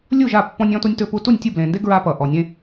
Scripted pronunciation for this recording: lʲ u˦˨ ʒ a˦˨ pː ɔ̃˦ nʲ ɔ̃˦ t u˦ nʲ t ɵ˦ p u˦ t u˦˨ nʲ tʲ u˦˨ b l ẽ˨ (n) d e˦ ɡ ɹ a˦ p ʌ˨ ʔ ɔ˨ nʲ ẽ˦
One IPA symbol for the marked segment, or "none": n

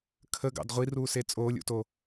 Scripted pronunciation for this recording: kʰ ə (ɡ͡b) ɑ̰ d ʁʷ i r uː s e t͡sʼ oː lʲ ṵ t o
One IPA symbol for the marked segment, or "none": ɡ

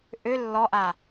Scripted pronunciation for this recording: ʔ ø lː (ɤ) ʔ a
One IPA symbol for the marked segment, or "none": ɔ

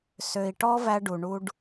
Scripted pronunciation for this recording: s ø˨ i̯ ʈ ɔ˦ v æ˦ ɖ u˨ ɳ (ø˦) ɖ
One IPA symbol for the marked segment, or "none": u˦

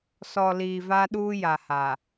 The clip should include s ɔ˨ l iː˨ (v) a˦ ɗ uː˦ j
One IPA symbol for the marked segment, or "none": v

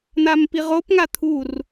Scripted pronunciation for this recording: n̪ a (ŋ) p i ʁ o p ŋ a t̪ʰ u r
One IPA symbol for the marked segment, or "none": m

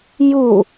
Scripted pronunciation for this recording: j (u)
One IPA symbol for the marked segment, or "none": u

